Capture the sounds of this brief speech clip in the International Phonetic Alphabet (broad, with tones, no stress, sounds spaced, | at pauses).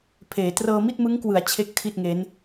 pʰ eː˩˦ t r ɤː˧ m i˥˩ t̚ m ɯ˦˥ ŋ k w ɯ˩˦ a̯ t͡ɕʰ e˥˩ k̚ tʰ i˥˩ t̚ ŋ e˦˥ n